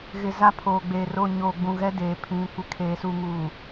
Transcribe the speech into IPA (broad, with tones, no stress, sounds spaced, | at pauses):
ɣ ɪ˨ z a˦ pʰ oː˨ ɡ͡b eː˨ r o˦˨ ɲ oː˨ ɡ͡b ũ˨ ɣ ɛ˦ d eː˨ pʰ ĩ˨˦ kʷ ɪ˨ kʰ eː˨ s u˨ ŋ uː˨